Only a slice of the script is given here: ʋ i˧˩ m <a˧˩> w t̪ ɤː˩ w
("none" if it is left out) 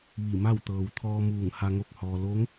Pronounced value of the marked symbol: a˥˨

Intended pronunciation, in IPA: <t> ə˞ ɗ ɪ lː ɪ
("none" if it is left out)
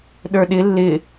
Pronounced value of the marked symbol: ɗ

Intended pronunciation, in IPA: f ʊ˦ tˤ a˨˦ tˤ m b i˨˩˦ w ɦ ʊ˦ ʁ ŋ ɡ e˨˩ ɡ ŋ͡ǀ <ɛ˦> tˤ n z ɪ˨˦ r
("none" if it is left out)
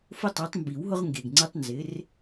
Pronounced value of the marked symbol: ɛ˦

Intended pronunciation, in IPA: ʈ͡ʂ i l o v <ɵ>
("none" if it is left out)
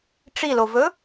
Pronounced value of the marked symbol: ɵ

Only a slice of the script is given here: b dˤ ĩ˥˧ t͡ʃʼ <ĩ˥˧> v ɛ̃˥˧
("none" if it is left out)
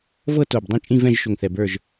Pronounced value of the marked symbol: ĩ˥˧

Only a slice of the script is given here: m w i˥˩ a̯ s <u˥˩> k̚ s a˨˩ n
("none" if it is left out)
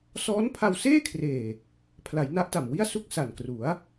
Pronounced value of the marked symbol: u˥˩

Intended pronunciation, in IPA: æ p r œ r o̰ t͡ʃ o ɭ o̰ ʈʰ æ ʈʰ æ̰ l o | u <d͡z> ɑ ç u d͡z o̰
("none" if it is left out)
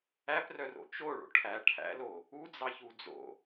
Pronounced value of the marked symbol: d͡z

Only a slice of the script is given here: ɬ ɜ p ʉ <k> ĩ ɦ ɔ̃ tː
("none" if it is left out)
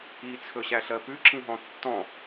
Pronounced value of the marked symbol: ǁ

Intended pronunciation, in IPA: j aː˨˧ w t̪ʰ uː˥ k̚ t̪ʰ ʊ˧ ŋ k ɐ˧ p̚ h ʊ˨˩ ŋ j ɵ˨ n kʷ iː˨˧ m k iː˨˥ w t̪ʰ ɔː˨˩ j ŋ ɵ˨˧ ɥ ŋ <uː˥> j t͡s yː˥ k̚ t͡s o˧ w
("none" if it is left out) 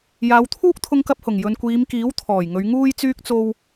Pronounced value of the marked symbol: uː˥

